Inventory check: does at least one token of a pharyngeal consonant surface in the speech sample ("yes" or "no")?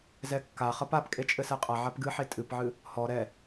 yes